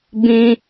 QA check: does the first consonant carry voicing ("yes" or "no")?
yes